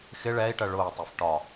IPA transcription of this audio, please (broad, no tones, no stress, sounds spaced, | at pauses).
x ɪ ɭ ɛ i̯ ʈ ɜ ɭ ʊː tˤ ə f ʈ ɒ